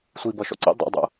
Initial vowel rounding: unrounded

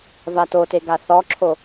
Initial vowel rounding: unrounded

